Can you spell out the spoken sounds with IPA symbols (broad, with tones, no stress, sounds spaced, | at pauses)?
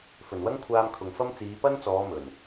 f ɵ˨˩ n w ɐ˥ ŋ kʷʰ aː˧ m kʰ ʊ˨ ŋ f ɐ˥ m t͡s iː˨˧ p ɐ˥ n t͡s ɔː˨˧ m ɵ˨˩ n